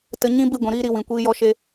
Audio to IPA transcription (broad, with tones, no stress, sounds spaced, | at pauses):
t ə˧ ɲ ĩ˦ b i˦˨ ɡʷ ĩ˨ ɾ iː˧ ɾ i˨ w ĩ˨ kʷ iː˧ j ɔ˧ ʃ e˧